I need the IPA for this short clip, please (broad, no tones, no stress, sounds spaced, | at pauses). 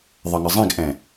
ðˤ ə ŋ ə zˤ ĩ ɡ ʔ ɛ̃